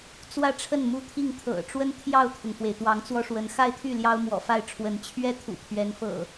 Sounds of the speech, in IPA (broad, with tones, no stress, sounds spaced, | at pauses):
t͡s w ä˥˨ ʈ͡ʂʰ ə˥˨ n m u˦ t̪ʰ i˥˨ ŋ t̪ʰ ɤ̰˨˩ ʈ͡ʂ w ə˦ n t̪ʰ j ɑ˥˨ ʊ̯ t̪ʰ ʊ˩ ŋ f w e˩ ɪ̯ t̪ w ɑ˨˦ ŋ t͡s w ɔ˦ ʂ w ə˨˦ n x a˥˨ ɪ̯ t̪ʰ y˥˨ l j ɑ˦ ʊ̯ m w ɔ̰˨˩ f a˥˨ ɪ̯ ʈ͡ʂʰ w ə˨˦ n t͡ɕʰ ɥ ɛ˦ t̪ʰ ṵ˨˩ pʰ ɥ ɛ˨˦ n f ɤ̰˨˩